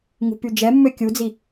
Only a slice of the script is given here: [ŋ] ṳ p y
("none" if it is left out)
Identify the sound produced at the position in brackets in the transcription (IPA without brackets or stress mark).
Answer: ŋ